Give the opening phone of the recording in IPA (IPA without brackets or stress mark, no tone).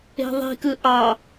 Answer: e̤